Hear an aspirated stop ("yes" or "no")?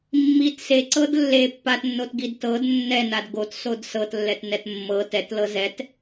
no